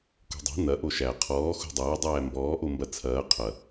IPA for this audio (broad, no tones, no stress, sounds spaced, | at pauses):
k o̤ dˤ ɛ̤ n̪ ɐ ʔ o ʃ æ qʰ ɔː x o̤ dˤ ɐː dˤ æː m b ɔː ʔ o m b ɐ t͡sʰ ɐː qʰ ɐ